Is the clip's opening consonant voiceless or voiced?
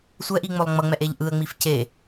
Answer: voiceless